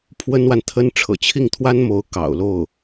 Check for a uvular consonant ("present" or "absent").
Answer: absent